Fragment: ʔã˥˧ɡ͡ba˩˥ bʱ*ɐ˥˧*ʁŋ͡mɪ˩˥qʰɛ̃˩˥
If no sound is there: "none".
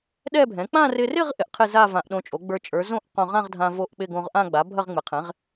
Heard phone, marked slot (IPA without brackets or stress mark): ɐ˥˧